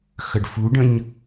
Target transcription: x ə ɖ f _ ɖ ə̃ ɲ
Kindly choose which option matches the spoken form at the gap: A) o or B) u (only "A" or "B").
B